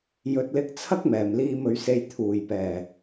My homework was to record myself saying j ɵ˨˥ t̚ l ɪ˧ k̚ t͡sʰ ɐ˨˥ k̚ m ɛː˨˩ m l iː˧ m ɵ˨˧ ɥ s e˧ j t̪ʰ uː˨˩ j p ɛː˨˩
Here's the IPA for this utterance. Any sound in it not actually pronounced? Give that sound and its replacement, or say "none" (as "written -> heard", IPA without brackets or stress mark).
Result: ɐ˨˥ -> ɐ˥